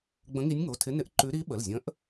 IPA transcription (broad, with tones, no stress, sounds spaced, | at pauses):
ɡ͡b ə̃˧˥ ŋ i˧˥ nʲ ŋ o˩˧˩ tʰ ɪ˧˥ n ɪ˧˥ ʔ ǃ ʉ˧˥ ɾ i˧˥ ɓ ə˩˧˩ l zʲ ə̃˧˥ ʔ